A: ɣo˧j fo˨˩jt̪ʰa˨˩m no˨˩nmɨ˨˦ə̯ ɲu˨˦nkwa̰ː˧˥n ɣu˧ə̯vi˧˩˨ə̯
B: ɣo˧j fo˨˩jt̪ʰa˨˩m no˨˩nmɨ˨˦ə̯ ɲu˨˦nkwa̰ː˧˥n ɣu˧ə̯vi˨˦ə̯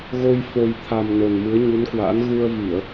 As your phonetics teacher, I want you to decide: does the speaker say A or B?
A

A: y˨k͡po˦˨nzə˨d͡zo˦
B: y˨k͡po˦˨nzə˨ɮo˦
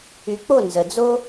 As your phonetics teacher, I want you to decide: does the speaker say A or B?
A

